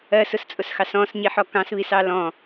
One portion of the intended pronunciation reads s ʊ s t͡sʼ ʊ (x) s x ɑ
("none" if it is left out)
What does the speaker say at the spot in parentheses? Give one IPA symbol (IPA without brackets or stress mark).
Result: none